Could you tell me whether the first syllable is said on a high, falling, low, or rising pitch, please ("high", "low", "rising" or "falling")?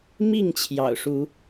falling